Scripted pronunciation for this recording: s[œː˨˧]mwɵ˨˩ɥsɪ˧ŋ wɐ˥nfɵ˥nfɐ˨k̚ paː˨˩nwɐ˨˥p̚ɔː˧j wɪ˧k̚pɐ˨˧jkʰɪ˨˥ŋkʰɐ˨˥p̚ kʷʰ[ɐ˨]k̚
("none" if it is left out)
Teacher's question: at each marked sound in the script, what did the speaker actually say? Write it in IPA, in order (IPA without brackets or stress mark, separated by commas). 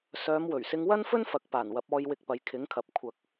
œː˨˧, ɐ˨